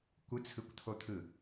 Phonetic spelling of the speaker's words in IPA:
kʷ ɯ t͡sʰ ɯ kʷ t̪ʰ o t̪ʰ ɯ

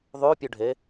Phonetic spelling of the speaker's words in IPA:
ðˤ ʉ pʲ ʉ ɖʱ e

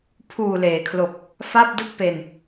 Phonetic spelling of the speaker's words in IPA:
pʰ uː˨˩ l eː˩˦ kʰ l o˨˩ k̚ | f a˥˩ p̚ d ɯ˥˩ k̚ p e˧ n

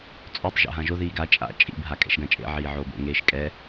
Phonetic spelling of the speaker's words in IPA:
t͡sʼ o tˤ ʒ a̰ ɦ ã ʒ o ð iː ɡ a t͡ʃʼ a̰ t͡ʃʼ ḭ b ɦ a kʼ ɛ̰ ʃ ɡ ã t͡ʃʼ ḛ ʕ iː ʕ oː b o̰ ŋ eː ʃ kʼ ɛ

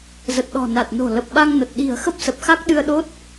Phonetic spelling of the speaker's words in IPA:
z ə˨˩ t̚ ɗ ɔ̤˨˩ n a˨˩ t̚ n o̤˨˩ l ə˨˩ p̚ ɓ a˧ ŋ n ə˨˩ t̚ ɗ i̤˨˩ ə̯ x ə˦˥ p̚ s ə˨˩ p̚ x a˦˥ k̚ ɗ ɨ˧ ə̯ ɗ o˦˥ t̚

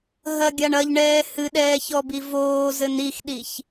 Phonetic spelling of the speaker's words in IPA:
ɦ ɐ ɡʲ a ɳ ɐ ʎ ɳ ɛː h ɨ ɗ ɛː ç ɔ b i v oː z ɘ n i x ɗ i ç

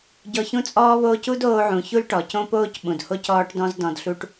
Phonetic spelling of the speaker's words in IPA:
ɟ ɔ˧ ç ũ˥ t͡sʼ ɔː˥ β oː˥ c u˥ d oː˧ ʕ ũ˩ ç u˥ l ʈ ɔ˩ c õ˥ p oː˥ c ɓ ũ˩ d h o˥ c ɔː˥ ʈ d ɔ̃˥ z d ɔ̃˧ d ɬ u˥ ʈ

